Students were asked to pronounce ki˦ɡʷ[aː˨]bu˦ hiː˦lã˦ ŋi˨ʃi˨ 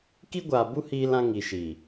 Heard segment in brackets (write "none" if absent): aː˨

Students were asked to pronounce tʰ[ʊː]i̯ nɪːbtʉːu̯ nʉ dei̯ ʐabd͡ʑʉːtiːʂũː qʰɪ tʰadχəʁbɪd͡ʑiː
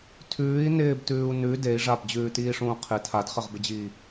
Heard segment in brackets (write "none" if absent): ʉː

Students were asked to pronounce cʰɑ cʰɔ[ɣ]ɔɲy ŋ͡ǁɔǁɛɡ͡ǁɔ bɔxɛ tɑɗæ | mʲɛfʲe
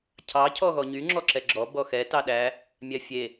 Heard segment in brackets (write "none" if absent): ɣ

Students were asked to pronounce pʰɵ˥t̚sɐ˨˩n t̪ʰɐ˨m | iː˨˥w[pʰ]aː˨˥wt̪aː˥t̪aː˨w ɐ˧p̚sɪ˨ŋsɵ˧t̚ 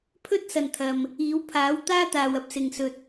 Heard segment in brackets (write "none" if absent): pʰ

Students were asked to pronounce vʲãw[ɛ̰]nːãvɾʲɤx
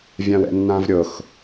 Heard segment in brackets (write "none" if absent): ɛ̰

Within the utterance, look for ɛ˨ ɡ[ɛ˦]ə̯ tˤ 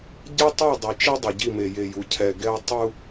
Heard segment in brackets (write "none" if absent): ɛ˦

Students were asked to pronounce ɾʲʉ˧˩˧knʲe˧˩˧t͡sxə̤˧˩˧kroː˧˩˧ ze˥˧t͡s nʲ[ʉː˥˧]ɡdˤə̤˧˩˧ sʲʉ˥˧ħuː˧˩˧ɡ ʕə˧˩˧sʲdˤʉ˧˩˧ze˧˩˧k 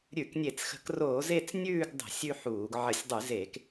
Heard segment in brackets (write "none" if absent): ʉː˥˧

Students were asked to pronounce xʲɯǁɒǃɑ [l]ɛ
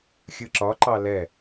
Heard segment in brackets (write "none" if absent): l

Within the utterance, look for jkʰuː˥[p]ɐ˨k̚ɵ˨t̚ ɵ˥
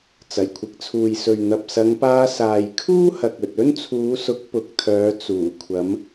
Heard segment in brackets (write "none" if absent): h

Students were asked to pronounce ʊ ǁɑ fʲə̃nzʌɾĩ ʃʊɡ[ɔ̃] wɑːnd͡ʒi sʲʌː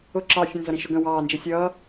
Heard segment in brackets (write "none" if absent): ə̃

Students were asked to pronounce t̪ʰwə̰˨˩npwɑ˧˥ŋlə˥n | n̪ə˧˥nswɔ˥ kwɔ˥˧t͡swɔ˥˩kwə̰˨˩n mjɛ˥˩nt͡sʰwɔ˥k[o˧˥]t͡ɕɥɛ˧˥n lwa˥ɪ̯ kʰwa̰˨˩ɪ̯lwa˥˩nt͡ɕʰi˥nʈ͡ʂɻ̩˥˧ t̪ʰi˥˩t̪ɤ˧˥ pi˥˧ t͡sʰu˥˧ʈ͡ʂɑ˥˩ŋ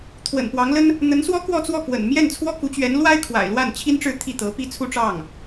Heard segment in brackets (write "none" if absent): u˧˥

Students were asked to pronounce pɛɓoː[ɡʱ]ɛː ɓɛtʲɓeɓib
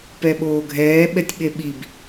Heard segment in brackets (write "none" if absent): ɡʱ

